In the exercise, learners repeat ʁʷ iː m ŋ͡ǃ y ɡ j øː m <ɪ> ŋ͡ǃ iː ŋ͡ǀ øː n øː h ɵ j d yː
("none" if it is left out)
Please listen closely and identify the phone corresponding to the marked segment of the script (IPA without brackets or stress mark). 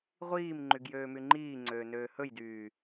y